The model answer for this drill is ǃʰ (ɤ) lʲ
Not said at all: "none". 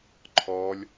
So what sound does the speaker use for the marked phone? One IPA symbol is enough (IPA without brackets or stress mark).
ɔ